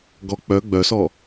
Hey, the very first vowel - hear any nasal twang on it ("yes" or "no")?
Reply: no